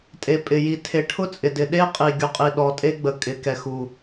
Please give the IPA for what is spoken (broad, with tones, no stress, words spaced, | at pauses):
tʼe˨pʼɪ˨ ji˨tʰe˨ ʈʰʊ˦t͡sʼɪ˨dɪ˨ ɗe˦qʼi˨ ɡʲu˨qʼi˨ɗɔ˨tʼe˦ ɡ͡bə˨kʼɪ˨˦kɛ˨xu˨